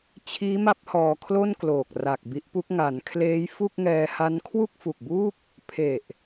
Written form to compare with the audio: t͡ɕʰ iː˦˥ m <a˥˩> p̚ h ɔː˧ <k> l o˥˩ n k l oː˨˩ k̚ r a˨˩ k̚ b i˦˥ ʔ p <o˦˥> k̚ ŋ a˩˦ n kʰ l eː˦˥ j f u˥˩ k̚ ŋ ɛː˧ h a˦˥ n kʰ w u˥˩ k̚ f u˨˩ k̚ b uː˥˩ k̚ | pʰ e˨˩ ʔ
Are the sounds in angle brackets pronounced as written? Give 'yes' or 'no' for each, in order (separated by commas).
no, no, no